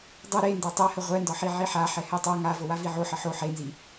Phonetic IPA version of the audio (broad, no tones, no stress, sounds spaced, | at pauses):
dˤ ə ɾ e n d a tˤ ɛ h ə ʁʷ ɛ n d ɒ ħ i ʕ i ħ a ħ ɛ h ɛ tˤ a ŋ a v o w a v i ʕ o ħ ə ħ o ħ e n z i